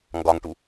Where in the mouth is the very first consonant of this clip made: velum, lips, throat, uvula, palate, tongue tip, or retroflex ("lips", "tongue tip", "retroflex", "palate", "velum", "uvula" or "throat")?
velum